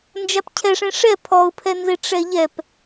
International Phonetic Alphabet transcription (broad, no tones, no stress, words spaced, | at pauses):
nd͡ʒapcʰɛʂẽ ʂɛ pʰɔʊ̯pʰɛnze ʈ͡ʂɛʎɛp